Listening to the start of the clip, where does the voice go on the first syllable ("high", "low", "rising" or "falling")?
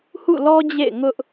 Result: falling